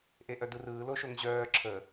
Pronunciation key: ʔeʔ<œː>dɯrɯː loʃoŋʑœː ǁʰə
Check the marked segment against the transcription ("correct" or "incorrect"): incorrect